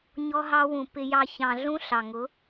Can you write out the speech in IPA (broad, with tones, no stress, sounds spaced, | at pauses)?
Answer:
ɲ ɔ˦ ɦ ɑ˦ w ũ˧ p ɪ˧ j ɑ˧ ç ɑ̃˧ ɮ ũ˦ ɬ ɑ˨ ŋ ʊ˨˦